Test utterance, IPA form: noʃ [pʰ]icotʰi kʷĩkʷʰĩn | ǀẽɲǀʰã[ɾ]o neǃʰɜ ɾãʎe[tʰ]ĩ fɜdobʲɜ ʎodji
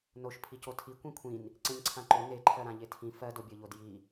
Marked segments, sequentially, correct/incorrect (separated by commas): correct, incorrect, correct